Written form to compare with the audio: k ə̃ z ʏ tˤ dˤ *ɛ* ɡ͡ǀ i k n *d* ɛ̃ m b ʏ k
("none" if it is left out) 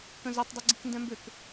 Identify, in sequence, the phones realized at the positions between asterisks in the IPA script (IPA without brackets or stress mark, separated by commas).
ʏ, d